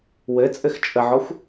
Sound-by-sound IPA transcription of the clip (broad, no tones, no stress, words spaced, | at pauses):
wɘ t͡sʼɘxt͡ʃʼəʕɔxʷ